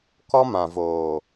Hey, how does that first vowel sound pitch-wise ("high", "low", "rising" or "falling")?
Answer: high